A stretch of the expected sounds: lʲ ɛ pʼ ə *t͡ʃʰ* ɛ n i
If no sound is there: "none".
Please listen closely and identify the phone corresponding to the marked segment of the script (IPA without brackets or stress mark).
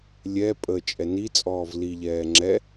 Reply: t͡ʃʼ